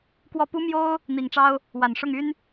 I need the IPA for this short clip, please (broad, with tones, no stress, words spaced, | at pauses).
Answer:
kwɔ˥˩ pu˥mjo˥ʊ̯ | n̪i˨˩ŋʈ͡ʂɑ˥ʊ̯ | wa˨˩nʂʊ˥˩ŋy˥n